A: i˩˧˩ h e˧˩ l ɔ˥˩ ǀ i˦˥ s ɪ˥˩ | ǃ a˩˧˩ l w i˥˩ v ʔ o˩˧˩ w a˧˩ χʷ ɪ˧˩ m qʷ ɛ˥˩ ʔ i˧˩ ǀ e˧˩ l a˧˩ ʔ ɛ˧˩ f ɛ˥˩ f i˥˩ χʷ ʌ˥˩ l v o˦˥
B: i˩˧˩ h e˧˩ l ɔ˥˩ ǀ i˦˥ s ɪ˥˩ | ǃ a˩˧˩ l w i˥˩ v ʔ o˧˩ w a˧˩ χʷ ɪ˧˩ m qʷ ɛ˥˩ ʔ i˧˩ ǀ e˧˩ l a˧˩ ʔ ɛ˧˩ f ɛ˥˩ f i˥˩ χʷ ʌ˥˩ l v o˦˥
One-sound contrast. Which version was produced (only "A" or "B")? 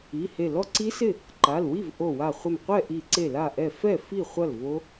B